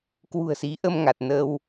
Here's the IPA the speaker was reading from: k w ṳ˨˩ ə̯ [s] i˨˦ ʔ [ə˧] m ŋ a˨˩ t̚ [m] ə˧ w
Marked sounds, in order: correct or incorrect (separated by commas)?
correct, correct, incorrect